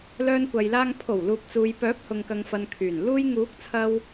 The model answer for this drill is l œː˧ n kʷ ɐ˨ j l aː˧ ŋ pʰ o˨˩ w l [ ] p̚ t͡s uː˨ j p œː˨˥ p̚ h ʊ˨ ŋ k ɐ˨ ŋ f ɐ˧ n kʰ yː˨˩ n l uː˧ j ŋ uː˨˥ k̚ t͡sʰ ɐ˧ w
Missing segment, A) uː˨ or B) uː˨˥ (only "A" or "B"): A